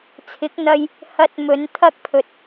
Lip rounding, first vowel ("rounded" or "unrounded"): unrounded